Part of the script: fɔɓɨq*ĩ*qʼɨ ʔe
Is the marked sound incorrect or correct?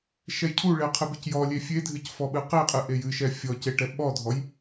incorrect